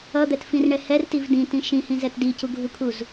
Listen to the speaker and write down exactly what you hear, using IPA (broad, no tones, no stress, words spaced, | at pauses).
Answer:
ʌd̪ɛtfĩrɳɛ hɛrtiv dĩtĩ ʃĩhĩzɛt dicuɡʱukʰuz